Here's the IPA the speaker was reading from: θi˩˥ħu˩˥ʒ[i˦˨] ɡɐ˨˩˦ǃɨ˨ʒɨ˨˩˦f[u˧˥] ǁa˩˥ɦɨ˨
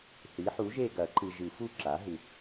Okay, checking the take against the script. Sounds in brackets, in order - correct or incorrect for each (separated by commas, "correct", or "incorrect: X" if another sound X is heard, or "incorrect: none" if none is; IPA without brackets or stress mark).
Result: incorrect: e˦˨, incorrect: u˦˨